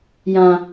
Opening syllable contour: low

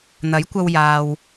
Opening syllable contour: rising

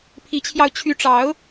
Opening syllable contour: rising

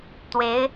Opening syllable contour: rising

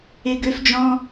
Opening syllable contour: high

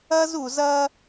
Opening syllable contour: high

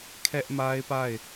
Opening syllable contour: high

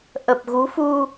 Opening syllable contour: low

